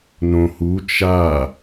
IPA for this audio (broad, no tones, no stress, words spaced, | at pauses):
nõhu t͡ʃa